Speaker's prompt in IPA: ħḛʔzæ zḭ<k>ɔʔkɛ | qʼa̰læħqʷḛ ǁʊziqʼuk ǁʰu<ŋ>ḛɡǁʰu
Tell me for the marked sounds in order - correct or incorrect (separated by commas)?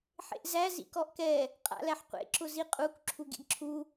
correct, incorrect